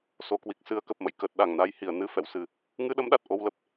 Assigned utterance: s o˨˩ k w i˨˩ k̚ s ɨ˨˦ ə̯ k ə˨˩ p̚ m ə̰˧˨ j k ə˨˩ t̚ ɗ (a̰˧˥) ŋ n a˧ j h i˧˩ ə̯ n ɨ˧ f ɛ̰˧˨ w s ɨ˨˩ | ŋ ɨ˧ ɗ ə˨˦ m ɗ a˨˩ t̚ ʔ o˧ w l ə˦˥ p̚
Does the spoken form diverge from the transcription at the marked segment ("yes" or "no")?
yes